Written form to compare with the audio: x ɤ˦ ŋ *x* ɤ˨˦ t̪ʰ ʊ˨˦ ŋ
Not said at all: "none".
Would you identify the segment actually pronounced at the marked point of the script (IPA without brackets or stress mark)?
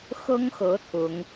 x